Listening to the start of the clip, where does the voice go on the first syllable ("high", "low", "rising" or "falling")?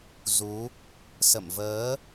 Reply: rising